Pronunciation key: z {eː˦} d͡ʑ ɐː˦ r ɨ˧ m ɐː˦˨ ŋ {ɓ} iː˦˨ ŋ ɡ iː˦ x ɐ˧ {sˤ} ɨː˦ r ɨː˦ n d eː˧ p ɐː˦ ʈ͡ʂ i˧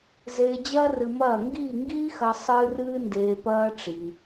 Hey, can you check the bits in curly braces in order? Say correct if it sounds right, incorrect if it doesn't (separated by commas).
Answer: incorrect, incorrect, correct